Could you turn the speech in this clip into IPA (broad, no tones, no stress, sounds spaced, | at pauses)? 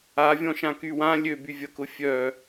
a vʲ ɔ̃ ʃ ã k y w ã lʲ ø b y vʲ ɐ k ʊ fʲ œ